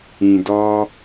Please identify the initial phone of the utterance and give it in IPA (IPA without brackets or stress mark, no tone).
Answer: ĩ